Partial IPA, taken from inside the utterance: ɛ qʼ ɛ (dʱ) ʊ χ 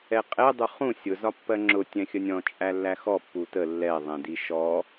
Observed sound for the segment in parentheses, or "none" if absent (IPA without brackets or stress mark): dˤ